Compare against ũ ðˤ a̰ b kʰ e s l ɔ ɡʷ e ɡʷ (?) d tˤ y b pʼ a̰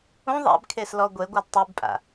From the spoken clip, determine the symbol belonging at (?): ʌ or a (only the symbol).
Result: a